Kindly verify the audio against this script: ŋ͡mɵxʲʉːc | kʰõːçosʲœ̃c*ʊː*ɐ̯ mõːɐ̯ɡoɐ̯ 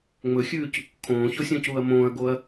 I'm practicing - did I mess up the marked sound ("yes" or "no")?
yes